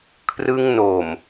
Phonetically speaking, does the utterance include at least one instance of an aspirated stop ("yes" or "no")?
yes